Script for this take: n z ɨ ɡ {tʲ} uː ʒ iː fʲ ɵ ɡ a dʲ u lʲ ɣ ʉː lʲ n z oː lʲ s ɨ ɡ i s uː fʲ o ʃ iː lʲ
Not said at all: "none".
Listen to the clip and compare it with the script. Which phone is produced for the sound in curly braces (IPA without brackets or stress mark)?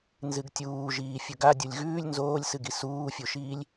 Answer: tʲ